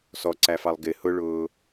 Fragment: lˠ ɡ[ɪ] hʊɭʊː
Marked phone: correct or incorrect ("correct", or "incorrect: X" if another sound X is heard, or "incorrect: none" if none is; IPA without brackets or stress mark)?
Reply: correct